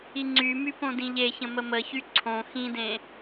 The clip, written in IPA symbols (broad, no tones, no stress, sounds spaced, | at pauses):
i ŋ͡ǀ y m y p õ d ĩ ʎ e ç ə̃ m ə m ə ç y ǀʰ õ x ĩ d ẽ